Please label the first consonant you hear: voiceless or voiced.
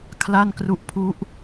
voiceless